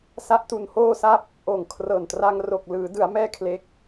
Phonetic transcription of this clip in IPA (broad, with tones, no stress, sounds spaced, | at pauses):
s a˦˥ ʔ t u˧ n h oː˥˩ s a˥˩ p̚ | ʔ oː˨˩ ŋ kʰ r ɤː˨˩ n t r a˧ ŋ r o˨˩ k̚ l ɯː˩˦ d ɯ˩˦ a̯ m ɛː˥˩ kʰ l e˦˥ k̚